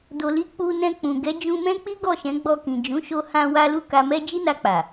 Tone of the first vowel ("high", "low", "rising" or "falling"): low